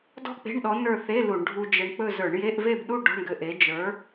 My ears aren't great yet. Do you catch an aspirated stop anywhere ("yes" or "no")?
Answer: no